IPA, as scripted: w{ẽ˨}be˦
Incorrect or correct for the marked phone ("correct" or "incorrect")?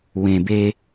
correct